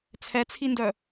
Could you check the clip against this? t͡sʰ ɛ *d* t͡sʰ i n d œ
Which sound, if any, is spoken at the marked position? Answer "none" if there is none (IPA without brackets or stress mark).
none